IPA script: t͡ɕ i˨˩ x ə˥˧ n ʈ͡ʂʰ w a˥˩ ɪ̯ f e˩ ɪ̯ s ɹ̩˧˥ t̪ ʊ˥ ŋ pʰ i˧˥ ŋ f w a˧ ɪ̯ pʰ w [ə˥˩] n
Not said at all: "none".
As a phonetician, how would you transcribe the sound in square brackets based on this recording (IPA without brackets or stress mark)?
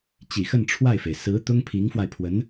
ə˧˥